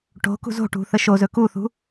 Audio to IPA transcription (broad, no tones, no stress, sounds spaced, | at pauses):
ʈ o̤ k ṳ z o̤ ʈ ṳ θ ə ʃ o z ɵ k u θ ṳ